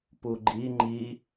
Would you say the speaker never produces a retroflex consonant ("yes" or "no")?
yes